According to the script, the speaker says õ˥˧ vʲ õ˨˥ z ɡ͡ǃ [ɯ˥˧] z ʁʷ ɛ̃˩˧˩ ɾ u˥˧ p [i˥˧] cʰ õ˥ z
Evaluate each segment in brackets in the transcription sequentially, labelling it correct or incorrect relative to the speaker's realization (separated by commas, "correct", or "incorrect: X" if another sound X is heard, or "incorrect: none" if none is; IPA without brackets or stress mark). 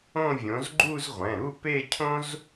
incorrect: u˥˧, incorrect: e˥˧